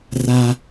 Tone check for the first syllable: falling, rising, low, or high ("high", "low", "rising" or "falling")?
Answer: high